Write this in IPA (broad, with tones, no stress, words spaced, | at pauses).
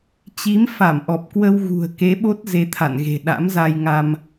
t͡ɕi˨˦mfa˧˩mʔɔ˨˩p̚ kwə˧wɣṳ˨˩ə̯ke˨˦ ɓo˦˥t̚ ze˧t̪ʰa̰˧˨nɣe̤˨˩ ɗa̰˧˥mza˧jŋa˧m